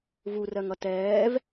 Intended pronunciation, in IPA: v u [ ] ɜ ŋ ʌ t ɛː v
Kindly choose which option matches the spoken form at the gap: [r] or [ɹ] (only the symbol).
r